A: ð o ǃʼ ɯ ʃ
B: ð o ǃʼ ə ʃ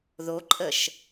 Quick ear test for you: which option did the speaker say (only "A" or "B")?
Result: B